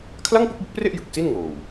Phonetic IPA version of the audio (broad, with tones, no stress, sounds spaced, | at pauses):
kʰ l a˥˩ ŋ p u˥˩ k̚ b u˦˥ k̚ p r e˥˩ ʔ j ɯ˨˩ k̚ s i˥˩ n ŋ oː˨˩ w